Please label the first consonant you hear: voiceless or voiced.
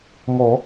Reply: voiced